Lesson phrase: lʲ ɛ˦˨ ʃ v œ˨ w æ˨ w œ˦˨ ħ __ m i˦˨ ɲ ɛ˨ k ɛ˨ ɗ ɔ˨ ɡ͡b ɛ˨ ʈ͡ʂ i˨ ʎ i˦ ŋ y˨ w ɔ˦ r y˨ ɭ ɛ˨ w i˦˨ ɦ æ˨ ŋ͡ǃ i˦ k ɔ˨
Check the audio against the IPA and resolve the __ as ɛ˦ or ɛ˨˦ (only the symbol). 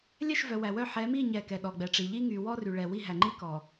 ɛ˨˦